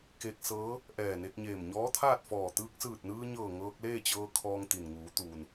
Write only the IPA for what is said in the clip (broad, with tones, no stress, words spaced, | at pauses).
ke˧k̚ sɤː˧˥ | ʔɛː˧˩ne˧k̚ɲeː˧˩m ɲɔː˧˥t̪ʰaː˥˨t̚fɔː˧˩ t̪ɯː˧k̚sɯː˧˩t̚nɯː˧ɲɤː˧˩ ŋɤː˧k̚leː˥˨t͡ɕɤː˧ kʰɔː˧ŋt̪i˩nŋuː˩˧t̪uː˩n